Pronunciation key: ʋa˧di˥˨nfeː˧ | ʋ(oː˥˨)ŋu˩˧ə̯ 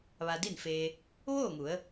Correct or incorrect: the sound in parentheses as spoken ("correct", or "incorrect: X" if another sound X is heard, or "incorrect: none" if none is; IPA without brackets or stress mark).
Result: correct